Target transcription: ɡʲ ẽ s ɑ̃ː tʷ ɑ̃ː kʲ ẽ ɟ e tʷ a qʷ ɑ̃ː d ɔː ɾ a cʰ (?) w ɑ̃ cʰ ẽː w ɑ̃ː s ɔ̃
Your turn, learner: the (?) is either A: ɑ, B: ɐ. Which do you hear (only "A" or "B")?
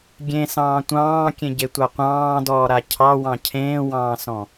A